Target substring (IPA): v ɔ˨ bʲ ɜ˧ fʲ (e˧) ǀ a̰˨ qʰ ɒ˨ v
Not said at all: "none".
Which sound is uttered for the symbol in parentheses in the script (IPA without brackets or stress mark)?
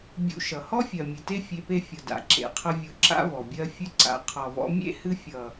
ɨ˧